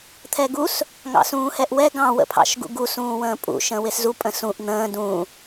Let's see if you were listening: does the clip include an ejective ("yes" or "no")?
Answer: yes